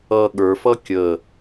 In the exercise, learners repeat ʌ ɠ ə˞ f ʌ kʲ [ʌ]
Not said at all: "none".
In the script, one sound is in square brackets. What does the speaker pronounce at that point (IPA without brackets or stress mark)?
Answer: ə